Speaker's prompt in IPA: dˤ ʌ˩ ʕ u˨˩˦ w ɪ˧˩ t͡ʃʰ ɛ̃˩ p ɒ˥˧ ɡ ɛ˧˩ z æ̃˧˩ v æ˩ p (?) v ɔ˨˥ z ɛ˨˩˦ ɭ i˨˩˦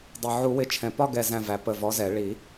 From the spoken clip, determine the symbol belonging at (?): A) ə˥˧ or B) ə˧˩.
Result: B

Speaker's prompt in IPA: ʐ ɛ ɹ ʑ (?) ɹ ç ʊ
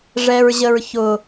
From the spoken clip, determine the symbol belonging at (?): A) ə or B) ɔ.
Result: A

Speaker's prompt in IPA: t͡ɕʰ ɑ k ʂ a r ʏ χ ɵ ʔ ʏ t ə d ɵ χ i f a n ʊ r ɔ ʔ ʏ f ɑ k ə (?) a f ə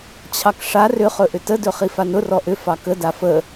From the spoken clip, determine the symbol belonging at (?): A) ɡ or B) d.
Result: B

